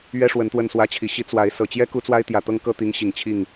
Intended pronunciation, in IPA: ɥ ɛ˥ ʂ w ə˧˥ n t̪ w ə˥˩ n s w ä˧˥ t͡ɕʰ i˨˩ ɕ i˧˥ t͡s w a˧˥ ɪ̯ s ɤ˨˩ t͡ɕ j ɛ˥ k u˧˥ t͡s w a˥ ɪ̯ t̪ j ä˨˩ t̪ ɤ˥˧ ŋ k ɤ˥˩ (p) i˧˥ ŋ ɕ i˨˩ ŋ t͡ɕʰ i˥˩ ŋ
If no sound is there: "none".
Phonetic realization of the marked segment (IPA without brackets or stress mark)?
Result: t̪